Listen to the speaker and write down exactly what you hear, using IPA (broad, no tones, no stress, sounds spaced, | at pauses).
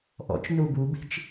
ʔ ɔ̰ t͡ʃ n u b u b i̤ t͡ʃ